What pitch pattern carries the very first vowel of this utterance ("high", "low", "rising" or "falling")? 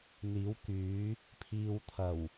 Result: rising